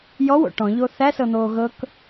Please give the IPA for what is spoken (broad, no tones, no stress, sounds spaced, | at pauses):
j ɔ w o̰ ʈ ɔ̃ ʎ o θ æ s ɤ n̪ oː ɣ ɤ k